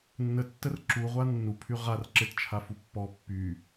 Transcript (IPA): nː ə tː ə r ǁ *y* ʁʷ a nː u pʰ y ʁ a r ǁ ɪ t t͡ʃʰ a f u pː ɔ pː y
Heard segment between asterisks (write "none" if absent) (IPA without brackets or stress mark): u